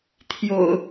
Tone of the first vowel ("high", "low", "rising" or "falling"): low